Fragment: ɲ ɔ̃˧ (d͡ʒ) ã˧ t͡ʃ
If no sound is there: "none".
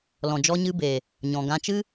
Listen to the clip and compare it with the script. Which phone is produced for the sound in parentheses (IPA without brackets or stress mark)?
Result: ɡ